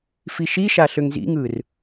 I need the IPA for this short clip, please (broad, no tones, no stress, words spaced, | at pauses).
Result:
fiʃiʃa ɬøŋzḭŋɯr